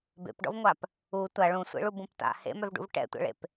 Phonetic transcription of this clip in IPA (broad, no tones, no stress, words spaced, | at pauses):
bḛpɖɔ̰vŋʷap | u tʷa ɭũsʷḛɭubũp ta̰ hḛmœvɖṵv ʈɛ̰tʷɛ̰ɭḛp